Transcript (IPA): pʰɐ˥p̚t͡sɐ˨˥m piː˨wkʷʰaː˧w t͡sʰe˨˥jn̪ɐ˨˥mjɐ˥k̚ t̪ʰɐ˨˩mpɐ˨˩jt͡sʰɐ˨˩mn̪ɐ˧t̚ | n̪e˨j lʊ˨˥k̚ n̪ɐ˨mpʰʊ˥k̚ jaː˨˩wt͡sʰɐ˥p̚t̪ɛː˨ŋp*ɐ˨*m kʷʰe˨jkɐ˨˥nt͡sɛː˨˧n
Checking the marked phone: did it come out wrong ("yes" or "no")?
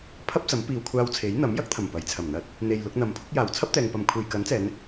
no